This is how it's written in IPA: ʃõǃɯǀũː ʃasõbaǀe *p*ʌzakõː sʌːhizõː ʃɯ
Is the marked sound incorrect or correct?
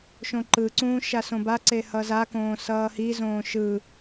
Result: incorrect